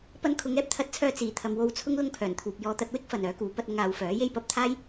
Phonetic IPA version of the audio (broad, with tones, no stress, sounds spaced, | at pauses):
p ɐ˥ n kʰ ʊ˨˧ ŋ ɛː˥ p̚ t̪ʰ ɐ˧ t̚ t͡sʰ œː˧ t͡s iː˨˩ t̪ʰ ɐ˨ m w o˧ w t͡sʰ ʊ˥ ŋ l ʊ˥ ŋ pʰ œː˨˩ n t̪ʰ uː˨ p̚ j ɔː˧ t̪ ɐ˧ t̚ w ɪ˥ k̚ f ɐ˨ n œː˨˥ k uː˨˥ p ɐ˧ t̚ ʊ˧ ŋ aː˨˧ w f œː˨˥ j e˥ j p ɐ˨˥ p̚ t̪ʰ aː˥ j